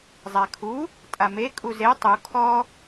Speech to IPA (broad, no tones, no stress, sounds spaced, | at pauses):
zˤ a kʰ u | tʼ a m e kʼ u z e tˤ u kʰ ɔ